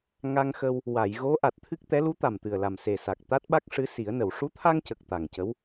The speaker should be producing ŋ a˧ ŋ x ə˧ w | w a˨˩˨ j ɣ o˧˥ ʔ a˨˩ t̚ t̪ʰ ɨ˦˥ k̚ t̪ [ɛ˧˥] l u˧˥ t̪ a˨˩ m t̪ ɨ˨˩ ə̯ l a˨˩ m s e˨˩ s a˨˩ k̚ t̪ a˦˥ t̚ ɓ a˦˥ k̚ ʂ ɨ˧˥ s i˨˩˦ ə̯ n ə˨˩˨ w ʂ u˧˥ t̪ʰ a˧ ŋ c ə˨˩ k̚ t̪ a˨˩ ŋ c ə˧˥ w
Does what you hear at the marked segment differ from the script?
no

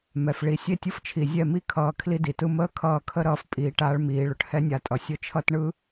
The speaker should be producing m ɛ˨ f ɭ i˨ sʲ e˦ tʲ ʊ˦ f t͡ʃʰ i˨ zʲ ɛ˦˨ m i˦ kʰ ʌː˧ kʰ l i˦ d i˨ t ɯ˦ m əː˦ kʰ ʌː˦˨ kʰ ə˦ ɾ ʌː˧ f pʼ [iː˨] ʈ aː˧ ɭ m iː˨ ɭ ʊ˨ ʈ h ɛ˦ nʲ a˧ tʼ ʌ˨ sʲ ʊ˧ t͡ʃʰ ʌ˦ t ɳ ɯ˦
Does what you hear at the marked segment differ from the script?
no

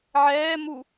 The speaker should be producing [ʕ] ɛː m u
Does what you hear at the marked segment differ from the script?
no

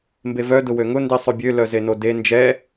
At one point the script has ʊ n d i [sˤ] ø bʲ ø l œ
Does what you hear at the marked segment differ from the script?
no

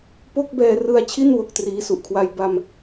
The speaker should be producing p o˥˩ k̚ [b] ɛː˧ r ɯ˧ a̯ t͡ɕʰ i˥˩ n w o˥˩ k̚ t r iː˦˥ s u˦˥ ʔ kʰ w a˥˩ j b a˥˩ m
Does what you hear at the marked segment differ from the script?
no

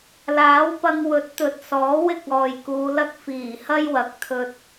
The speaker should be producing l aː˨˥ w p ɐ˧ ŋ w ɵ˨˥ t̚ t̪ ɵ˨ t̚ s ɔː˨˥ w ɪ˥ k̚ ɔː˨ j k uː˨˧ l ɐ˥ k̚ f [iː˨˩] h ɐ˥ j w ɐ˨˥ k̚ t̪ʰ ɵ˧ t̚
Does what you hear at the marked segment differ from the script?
no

